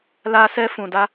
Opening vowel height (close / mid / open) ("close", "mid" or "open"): open